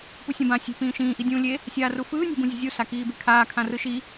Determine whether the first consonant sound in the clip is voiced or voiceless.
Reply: voiceless